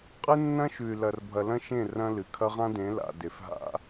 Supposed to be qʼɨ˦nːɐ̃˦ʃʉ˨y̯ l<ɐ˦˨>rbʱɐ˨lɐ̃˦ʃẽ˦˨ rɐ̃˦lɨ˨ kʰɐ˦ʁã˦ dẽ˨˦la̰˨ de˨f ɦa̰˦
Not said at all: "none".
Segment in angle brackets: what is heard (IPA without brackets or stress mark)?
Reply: ɐ˨